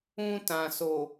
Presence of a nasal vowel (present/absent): present